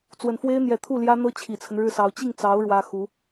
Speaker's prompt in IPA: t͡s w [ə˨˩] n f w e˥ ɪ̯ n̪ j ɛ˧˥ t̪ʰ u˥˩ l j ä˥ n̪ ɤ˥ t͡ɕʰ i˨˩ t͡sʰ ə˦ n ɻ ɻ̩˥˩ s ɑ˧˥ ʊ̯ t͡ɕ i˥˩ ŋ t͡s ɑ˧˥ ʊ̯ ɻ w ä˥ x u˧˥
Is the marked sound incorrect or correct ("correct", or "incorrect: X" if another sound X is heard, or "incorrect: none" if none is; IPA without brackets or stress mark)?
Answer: correct